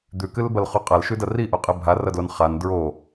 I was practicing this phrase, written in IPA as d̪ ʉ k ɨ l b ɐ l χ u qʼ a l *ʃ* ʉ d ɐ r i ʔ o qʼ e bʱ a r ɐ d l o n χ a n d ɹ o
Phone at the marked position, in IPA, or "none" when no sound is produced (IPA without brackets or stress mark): ʃ